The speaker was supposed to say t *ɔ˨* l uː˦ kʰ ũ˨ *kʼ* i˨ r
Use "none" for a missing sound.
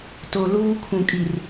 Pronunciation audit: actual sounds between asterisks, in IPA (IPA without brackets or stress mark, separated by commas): o˨, kʼ